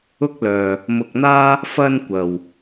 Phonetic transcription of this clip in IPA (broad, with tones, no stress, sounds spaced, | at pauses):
ʊ˥ k̚ l œː˧ | m ʊ˧ k̚ n̪ aː˥ | f ɐ˧ n kʷ ɐ˨ w